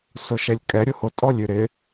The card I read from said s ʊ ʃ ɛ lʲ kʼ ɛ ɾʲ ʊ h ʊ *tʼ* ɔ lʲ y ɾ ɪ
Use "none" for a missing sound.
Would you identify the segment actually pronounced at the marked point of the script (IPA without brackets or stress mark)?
tʼ